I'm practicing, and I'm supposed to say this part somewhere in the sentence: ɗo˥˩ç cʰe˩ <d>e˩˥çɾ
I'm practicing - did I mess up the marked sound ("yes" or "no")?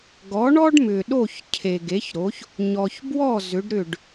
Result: yes